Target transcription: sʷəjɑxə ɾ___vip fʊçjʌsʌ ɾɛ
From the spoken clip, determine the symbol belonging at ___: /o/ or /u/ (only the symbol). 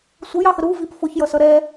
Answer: u